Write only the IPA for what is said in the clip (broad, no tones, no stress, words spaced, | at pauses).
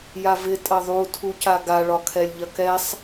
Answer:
javɪ tʼɐðˤu tʰucaɡa ɭɒkʰɛlʲʎɐkɛsˤ